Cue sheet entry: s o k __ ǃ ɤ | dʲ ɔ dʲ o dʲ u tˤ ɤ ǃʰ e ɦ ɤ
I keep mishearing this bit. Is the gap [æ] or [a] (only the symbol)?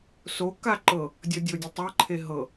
a